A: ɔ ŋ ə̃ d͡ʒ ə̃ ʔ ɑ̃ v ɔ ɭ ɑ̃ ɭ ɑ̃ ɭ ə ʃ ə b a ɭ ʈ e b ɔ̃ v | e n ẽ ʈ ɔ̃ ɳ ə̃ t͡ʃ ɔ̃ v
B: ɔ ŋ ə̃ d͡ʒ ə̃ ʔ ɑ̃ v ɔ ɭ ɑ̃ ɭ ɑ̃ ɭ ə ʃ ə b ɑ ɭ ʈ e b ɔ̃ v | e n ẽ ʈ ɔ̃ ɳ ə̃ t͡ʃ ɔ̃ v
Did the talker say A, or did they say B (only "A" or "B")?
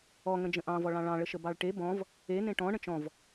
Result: B